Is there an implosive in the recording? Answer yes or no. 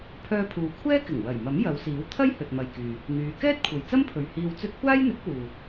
no